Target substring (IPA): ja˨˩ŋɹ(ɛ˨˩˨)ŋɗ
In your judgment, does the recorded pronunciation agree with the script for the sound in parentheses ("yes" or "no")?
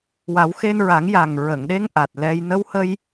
no